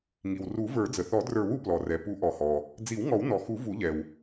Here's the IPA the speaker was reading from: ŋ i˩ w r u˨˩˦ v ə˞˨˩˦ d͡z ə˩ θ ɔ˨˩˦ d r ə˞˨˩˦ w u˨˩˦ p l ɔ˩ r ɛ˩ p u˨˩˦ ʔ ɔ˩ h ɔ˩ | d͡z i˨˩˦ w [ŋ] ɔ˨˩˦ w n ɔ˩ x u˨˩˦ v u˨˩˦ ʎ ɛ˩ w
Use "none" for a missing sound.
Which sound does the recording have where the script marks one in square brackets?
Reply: ŋ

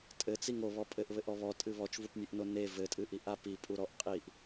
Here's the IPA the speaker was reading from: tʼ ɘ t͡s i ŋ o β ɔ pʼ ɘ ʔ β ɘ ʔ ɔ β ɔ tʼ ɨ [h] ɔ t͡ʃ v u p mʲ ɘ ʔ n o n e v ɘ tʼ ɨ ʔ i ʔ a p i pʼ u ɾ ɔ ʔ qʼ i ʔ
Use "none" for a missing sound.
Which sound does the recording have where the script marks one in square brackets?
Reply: β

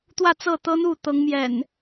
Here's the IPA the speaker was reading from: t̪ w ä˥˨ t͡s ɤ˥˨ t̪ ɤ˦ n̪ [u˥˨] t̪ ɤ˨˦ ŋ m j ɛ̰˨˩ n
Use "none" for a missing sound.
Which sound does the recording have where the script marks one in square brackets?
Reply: u˥˨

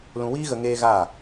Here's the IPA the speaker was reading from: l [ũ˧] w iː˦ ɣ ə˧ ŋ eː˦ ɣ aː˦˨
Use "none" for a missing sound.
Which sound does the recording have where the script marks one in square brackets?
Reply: ũ˧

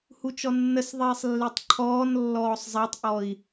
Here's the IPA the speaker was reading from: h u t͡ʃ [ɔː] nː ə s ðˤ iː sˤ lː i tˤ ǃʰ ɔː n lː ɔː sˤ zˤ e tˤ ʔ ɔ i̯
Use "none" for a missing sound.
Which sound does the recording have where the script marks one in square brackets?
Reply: ɔ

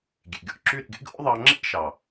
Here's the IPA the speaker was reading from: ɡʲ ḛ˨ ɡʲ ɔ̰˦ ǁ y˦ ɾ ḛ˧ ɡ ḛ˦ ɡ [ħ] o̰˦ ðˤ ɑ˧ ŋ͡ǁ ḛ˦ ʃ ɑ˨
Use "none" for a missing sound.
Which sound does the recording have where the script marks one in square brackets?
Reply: ʔ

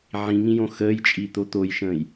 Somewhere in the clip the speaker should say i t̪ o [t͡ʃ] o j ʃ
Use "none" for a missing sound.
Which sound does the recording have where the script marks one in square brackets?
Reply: t̪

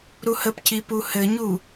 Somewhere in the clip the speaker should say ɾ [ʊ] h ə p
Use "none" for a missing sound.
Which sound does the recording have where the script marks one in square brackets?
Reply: u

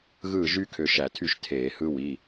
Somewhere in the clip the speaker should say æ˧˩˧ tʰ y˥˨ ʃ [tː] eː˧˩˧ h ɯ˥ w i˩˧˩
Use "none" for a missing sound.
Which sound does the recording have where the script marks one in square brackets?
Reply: tʰ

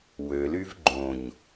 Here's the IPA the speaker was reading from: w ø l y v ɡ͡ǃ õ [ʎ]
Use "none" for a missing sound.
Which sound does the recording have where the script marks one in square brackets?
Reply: ɲ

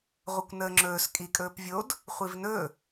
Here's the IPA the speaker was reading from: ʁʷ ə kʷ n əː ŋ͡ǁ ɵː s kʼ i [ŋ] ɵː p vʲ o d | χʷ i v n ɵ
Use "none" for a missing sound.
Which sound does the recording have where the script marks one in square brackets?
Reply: kʼ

